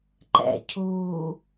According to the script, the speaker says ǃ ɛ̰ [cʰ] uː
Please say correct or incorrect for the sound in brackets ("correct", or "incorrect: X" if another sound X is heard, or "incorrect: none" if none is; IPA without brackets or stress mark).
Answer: correct